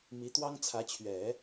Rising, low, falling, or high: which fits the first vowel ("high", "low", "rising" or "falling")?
rising